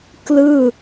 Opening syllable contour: falling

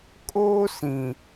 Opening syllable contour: high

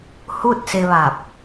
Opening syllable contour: falling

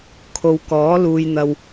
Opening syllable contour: low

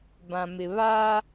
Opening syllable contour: low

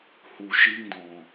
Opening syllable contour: low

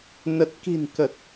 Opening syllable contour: low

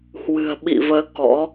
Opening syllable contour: low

